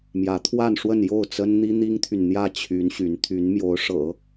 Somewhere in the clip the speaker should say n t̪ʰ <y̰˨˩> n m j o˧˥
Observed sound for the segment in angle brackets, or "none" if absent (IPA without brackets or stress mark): y˧˥